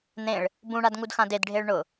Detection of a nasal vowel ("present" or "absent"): present